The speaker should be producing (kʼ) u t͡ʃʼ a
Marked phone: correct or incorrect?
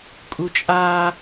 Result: correct